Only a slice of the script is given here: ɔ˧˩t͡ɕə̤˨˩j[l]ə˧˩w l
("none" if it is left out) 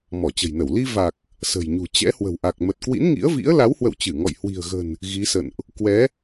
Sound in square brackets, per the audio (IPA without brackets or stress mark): n